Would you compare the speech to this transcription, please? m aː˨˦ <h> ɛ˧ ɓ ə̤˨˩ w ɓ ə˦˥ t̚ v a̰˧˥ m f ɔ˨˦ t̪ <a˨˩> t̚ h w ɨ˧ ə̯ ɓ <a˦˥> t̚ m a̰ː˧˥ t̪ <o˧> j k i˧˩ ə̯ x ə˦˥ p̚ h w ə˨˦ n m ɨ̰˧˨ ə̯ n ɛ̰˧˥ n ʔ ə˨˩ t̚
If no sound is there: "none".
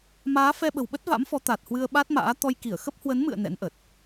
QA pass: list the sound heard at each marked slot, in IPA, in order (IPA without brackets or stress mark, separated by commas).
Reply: f, a˨˩, a˦˥, ɔ˧